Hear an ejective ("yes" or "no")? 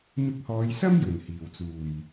no